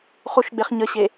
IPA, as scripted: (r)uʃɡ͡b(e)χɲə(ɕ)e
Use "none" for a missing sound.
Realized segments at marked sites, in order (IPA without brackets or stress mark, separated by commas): χ, e, ɕ